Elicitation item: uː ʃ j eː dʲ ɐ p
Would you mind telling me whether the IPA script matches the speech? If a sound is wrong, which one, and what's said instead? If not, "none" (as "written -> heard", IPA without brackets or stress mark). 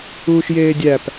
ɐ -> æ